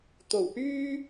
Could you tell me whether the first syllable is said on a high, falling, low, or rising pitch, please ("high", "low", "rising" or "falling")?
low